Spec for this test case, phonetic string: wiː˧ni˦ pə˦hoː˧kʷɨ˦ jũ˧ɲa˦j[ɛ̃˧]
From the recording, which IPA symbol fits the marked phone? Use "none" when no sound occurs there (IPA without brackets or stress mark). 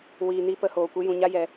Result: ɛ˧